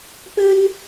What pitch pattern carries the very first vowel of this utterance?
high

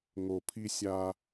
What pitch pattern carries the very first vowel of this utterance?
low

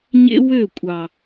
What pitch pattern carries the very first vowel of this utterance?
high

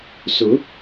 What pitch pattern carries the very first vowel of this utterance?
rising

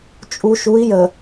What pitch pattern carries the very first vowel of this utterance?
low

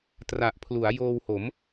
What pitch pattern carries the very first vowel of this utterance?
low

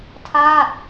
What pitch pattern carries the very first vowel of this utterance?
falling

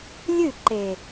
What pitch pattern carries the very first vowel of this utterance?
falling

